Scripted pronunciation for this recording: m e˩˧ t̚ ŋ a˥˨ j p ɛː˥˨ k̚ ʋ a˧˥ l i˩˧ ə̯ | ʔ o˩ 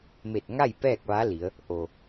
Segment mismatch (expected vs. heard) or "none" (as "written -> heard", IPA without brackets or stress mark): e˩˧ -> e˧˩